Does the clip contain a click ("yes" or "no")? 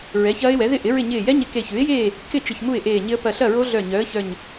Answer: no